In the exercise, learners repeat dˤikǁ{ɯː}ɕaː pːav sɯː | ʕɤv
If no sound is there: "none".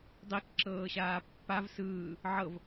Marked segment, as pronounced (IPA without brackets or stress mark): ɤː